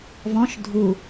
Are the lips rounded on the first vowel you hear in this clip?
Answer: yes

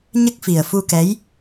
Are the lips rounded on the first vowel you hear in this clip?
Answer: no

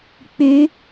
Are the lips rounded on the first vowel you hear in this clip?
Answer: yes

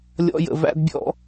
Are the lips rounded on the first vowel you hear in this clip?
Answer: yes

